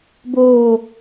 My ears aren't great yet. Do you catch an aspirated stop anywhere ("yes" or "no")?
no